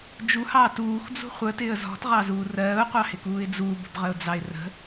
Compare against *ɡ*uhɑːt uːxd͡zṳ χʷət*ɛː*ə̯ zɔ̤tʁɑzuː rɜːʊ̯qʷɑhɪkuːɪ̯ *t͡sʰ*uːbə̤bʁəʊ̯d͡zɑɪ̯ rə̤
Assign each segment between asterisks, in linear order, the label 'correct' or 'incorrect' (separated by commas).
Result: incorrect, incorrect, incorrect